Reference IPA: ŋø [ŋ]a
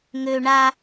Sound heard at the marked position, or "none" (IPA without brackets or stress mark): ɳ